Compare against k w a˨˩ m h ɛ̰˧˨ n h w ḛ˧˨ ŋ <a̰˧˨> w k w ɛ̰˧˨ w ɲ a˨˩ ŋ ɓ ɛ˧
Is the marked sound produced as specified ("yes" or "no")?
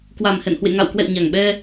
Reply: yes